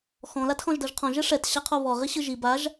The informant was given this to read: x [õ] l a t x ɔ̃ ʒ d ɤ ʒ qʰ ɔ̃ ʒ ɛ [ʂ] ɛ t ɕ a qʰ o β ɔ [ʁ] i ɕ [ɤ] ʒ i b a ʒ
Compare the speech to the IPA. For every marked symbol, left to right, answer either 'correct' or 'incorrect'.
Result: incorrect, correct, correct, incorrect

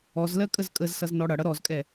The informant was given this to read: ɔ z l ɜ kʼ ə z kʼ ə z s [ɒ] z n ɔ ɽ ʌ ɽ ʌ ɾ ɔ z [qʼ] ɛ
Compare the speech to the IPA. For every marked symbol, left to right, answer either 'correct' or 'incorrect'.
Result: incorrect, incorrect

